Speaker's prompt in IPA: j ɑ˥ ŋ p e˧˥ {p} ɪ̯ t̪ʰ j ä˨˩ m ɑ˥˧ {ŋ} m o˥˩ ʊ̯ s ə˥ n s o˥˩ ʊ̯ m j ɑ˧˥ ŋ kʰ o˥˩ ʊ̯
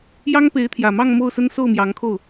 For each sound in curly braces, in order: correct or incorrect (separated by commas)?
incorrect, correct